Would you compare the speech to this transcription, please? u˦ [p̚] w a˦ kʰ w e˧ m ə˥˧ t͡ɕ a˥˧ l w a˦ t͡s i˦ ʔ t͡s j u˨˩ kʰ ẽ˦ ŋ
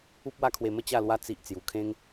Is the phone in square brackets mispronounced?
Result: no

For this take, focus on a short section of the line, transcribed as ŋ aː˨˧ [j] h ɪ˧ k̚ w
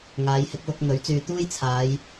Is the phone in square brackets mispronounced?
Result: no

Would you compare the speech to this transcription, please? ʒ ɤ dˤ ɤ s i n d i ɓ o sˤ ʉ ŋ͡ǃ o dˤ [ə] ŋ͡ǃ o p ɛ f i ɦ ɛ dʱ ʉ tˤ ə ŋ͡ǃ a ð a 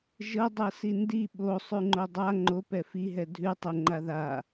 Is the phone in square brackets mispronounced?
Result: yes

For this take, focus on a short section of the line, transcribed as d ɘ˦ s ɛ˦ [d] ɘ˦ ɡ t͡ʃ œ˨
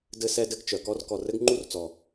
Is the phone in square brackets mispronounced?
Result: no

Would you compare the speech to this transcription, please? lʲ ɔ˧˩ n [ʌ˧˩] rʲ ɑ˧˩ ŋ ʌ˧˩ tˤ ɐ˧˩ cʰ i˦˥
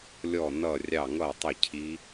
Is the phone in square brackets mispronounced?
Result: no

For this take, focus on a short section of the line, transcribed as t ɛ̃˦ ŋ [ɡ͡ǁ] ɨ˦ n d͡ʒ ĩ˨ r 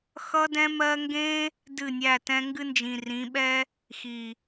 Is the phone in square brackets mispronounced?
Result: yes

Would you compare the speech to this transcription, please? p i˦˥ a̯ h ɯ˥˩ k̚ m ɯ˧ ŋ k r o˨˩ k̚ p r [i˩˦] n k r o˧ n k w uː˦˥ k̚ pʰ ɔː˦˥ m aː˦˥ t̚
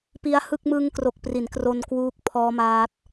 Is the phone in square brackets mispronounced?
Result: no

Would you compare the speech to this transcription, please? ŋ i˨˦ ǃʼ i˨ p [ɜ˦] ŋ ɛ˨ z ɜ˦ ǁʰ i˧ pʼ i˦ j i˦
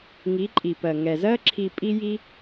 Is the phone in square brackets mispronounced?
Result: yes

